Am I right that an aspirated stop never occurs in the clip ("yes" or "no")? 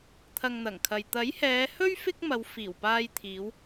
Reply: no